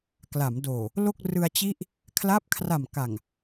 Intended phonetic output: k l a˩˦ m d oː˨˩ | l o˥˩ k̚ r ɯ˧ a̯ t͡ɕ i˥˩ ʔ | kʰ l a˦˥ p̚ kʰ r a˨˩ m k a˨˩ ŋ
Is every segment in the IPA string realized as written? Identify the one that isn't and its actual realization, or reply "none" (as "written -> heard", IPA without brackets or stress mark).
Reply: none